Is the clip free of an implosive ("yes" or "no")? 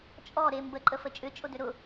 yes